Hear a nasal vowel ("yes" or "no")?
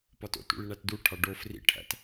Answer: no